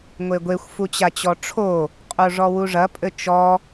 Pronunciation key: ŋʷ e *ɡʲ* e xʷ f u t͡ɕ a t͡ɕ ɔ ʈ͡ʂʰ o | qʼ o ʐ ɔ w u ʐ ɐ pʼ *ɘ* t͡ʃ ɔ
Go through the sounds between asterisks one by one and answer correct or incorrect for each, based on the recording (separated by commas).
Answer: incorrect, correct